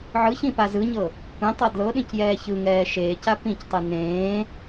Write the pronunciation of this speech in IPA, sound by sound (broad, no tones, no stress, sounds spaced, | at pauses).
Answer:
ʕ ɯ ç ĩ p a z ɯ ɲ ɤ | kʷ ẽ tˤ ɤ d l ɤ ɗ ĩ c j ɛː ç ɯ ŋ ɛː ʃ eː c a p ĩ c tˤ ɯ n ẽː